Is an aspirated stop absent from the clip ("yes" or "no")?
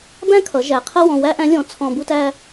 no